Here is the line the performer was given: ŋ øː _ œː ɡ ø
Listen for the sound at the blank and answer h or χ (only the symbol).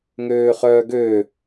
χ